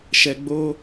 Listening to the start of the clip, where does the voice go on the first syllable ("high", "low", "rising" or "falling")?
low